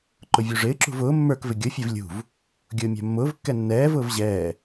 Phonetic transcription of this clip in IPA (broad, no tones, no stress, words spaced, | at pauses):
ǃʊvʲuʐɪːǁṳv ʊː mːə˞kvɪ ɡʲʊfʲɛv lʲṳv | ɡʲʊːmʲæ̤mːʊːvkːɛ nːɛːvʊːv ʑɛː